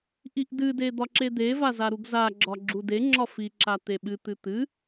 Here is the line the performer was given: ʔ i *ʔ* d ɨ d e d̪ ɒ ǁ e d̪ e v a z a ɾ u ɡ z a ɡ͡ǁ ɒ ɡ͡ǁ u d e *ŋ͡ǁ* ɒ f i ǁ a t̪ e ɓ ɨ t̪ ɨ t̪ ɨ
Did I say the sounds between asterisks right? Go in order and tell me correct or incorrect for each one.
correct, correct

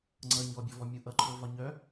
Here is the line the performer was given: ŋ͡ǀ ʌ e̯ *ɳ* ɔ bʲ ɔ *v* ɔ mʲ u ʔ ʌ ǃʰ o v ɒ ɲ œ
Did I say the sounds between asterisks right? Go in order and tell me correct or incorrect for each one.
incorrect: ɲ, correct

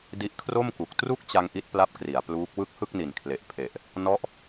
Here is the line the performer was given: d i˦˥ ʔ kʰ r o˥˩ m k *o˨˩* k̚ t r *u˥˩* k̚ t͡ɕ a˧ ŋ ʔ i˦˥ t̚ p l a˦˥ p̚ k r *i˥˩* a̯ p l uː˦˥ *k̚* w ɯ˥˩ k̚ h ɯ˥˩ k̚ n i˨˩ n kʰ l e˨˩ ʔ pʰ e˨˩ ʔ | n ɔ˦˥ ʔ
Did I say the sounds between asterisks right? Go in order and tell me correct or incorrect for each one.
incorrect: u˨˩, correct, incorrect: i˩˦, correct

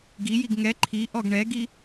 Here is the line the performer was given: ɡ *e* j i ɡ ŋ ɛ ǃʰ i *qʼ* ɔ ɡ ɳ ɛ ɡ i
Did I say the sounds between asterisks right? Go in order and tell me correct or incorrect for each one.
incorrect: i, incorrect: ʔ

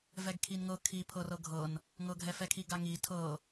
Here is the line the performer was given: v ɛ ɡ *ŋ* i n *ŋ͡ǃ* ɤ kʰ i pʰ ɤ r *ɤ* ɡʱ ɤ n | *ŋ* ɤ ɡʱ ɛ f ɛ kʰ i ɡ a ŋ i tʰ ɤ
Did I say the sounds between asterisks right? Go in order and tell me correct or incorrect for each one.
incorrect: kʰ, incorrect: ŋ, correct, correct

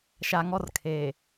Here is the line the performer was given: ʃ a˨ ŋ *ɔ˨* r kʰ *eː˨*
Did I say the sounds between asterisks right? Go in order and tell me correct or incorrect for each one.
incorrect: ɔ˦, correct

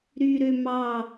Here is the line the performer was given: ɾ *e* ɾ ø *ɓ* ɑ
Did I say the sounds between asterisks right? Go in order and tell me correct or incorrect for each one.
incorrect: y, incorrect: m

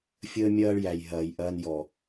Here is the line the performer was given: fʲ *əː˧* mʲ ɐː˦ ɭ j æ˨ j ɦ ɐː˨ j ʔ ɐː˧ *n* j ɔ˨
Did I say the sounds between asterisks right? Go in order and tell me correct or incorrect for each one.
incorrect: əː˦, correct

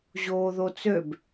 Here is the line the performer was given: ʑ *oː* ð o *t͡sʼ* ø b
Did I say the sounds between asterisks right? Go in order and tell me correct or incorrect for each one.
correct, incorrect: t͡s

